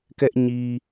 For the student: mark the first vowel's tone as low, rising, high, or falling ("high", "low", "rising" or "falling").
high